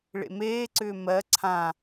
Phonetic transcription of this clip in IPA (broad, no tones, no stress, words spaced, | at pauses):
ɭḛmeːǀʏː mɜ ǀʰã